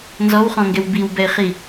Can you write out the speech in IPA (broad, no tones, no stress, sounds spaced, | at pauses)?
n z ɔ w χ ɔ̃ ŋ ɡ ɛ w b i w b ɛ ɪ̯ χ i